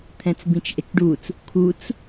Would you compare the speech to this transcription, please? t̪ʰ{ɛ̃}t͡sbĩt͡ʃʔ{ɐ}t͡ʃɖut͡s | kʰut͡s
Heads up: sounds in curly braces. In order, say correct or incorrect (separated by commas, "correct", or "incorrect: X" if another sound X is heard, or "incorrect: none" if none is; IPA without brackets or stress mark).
correct, incorrect: ə